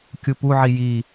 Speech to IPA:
kʲ u p u ʕ i j i

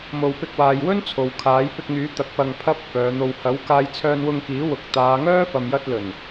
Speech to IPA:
m o˨ w p ɪ˧ k̚ w aː˨ j w ɵ˥ n t͡sʰ o˨ w kʰ aː˨˥ j p ɪ˧ k̚ ŋ yː˨˥ t̪ ɐ˨ k̚ p ɐ˨ ŋ pʰ ɐ˥ p̚ f œː˨˧ n̪ o˧ w h ɐ˨˥ w k aː˧ j t͡sʰ œː˧ n w ʊ˧ ŋ k iː˨˥ w ʊ˨ k̚ t̪ aː˨˧ ŋ œː˥ f ɐ˨ m j ɐ˧ t̚ l ɵ˨˩ n

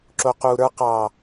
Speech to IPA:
ǁ o q u ɾ ə˞ q ɑ

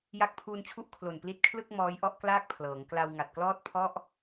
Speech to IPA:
j a˦˥ k̚ pʰ uː˧ n t͡ɕʰ u˥˩ ʔ kʰ l o˨˩ n p l i˦˥ t̚ kʰ l ɯ˥˩ k̚ m ɔː˦˥ j ʔ ɔ˥˩ ʔ k l aː˥˩ k̚ pʰ l ɤː˩˦ ŋ k l a˧ w ŋ a˨˩ t̚ k l ɔː˥˩ t̚ pʰ ɔ˥˩ ʔ

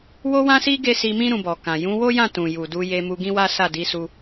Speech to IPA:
w o˧ w ã˧ s i˧ ɡ e˦ s i˧ m ĩ˦ ɾ ũ˧ b ɔ˨ k ã˨ j ũ˨˦ w o˦ j ã˦˨ t ũ˨ j u˨ d u˧ j e˧ m u˧ ɡ ĩ˦ w a˦ s a˦˨ d i˨˦ s u˧

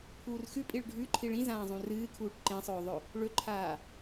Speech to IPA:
pʰ uː r x ʉ pʼ i ɭ ɖʱ ʉ ǃʰ i ɭ ĩ z ãː zˤ ũ r ɨː kʰ uː ʈ ǃ ẽ sˤ ɵː ðˤ ɵ | ɭ ɵ ǃʰ aː

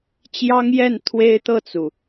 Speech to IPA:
t͡ɕ j ɑ˥ ŋ j ɛ˥˩ n t̪ʰ w e˥ ɪ̯ t̪ ɤ˥˩ t͡s u˩

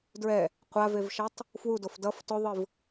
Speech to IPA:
d ɹ ɛ | qʷ a v e v ʃ ʌ tˤ | f w u d o f d ʌ f t o ðˤ ɯ v

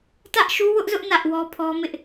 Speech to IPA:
t ä˦ ʔ ʃ u˦ w ʊ˦ ʔ z ʊ˦ ʔ n ä˦ ʔ w ɔ˦ pʰ ɔ˦ m ɪ˦ ʔ

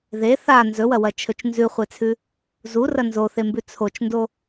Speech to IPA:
ð e θ a n z ɵ w ɐ w ɐ t͡ʃʰ ɵ t͡ʃ n z ʉ χʷ e t͡sʰ ʉ | z u r ɐ n z o θ e m b ʉ t͡sʰ o t͡ʃ n d o

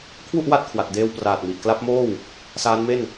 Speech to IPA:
kʰ w u˥˩ ʔ w a˥˩ t̚ kʰ w a˨˩ t̚ d eː˧ w p r aː˨˩ t̚ m i˨˩ ʔ k l a˦˥ p̚ m oː˥˩ w | s aː˦˥ n m e˥˩ n

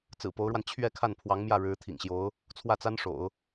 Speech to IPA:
t͡s ɹ̩˨˩ p o˧˥ ʊ̯ ɻ w a˧ n t͡ɕʰ ɥ ɛ˥˧ kʰ a˥˩ n pʰ w ɑ˧˥ ŋ m j ä˥˩ ɻ ɻ̩˧˥ t̪ʰ ḭ˨˩ ŋ ɕ j o˧˥ ʊ̯ | t͡sʰ w ä˥˩ t͡s a˥ n ʂ o̰˨˩˦ ʊ̯

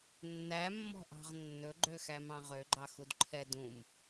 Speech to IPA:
nː æ mː ɔ̤ ʔ ɑ̤ ʁ nː ɵ ɡ͡ǃ ø x æ m ɑ̃ ʁ ø ɡ͡ǃ ɑ x u d ǃʰ ɛ d ũ m

